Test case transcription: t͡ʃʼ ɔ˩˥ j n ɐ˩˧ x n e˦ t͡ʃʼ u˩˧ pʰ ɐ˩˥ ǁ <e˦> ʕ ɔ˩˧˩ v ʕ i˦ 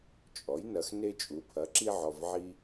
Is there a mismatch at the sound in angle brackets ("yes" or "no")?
yes